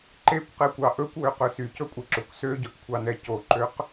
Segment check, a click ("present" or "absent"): present